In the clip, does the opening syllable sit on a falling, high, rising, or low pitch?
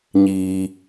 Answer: high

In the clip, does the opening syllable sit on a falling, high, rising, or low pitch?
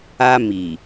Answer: high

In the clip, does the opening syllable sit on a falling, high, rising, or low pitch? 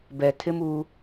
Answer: low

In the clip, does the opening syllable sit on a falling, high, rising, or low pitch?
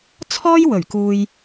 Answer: high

